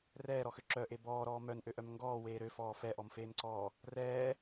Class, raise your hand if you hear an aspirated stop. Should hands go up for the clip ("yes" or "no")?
no